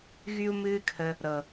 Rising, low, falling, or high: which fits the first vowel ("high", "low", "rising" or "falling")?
high